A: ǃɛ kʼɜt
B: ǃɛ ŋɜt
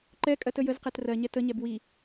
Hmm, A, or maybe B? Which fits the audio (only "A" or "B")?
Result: A